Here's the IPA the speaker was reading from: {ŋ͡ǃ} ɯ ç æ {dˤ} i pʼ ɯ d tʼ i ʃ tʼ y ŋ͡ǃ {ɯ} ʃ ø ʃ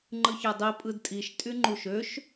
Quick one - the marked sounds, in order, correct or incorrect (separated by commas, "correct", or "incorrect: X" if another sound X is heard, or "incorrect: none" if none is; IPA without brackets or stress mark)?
correct, correct, incorrect: u